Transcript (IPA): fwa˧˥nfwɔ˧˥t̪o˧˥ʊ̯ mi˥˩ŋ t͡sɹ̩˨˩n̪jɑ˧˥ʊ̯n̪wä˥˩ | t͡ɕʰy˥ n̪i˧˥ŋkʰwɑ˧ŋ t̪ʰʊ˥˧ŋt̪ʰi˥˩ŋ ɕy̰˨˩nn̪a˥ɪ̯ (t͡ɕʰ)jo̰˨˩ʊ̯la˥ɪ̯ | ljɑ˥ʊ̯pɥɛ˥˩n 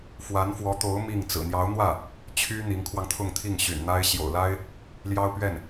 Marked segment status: incorrect: ɕ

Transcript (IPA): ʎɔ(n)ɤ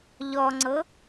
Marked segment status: incorrect: ŋ͡ǀ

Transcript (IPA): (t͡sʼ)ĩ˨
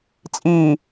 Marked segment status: correct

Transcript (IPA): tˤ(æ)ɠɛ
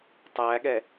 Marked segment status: correct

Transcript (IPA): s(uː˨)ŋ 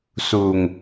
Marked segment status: correct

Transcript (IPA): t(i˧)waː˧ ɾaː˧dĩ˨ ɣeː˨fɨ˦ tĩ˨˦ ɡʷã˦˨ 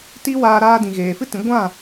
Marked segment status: incorrect: i˦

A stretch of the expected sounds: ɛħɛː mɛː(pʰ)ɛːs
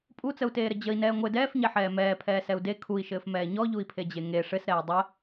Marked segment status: correct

